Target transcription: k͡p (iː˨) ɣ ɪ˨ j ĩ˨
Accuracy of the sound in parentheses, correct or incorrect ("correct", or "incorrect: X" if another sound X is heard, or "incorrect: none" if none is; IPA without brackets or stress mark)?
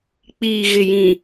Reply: correct